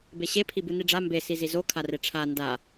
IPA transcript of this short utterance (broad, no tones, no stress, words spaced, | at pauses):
beɕepʰibɯ niɖ͡ʐa mbe sizizo kʰareʈ͡ʂʰa nda